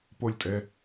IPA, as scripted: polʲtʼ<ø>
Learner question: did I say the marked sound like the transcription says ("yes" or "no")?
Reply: no